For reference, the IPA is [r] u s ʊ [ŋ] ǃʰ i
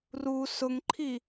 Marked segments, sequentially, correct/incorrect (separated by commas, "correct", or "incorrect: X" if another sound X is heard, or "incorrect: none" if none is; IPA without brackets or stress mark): correct, correct